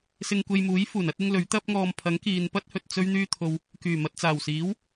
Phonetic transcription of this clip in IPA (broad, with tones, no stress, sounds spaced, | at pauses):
s ɪ˧ ŋ kʷ e˧ j m uː˨˥ j f uː˨˩ n ɐ˨˥ t̚ ɪ˥ ŋ l ɵ˨˥ ɥ t̪ ɐ˥ p̚ ŋ ɔː˧ m pʰ ɐ˨˥ ŋ k iː˨ n p ɐ˥ t̚ h ɵ˨ t̚ t͡s ɵ˥ ɥ n̪ yː˥ t̪ʰ o˧ w | k yː˨˩ m ɐ˨ t̚ t͡s aː˨˩ w s iː˨˥ w